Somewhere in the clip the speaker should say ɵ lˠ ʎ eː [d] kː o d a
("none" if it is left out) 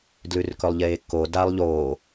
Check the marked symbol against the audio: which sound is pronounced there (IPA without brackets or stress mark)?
none